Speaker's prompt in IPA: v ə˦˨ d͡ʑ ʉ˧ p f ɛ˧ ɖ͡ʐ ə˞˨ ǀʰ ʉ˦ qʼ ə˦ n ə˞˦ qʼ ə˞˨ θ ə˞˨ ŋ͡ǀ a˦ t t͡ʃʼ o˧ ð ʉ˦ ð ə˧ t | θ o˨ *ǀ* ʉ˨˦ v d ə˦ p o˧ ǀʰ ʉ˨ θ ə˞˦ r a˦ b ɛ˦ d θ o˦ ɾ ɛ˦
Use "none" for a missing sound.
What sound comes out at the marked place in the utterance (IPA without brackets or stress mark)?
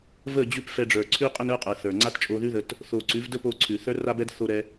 ǀ